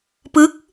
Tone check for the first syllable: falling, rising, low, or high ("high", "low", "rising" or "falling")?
rising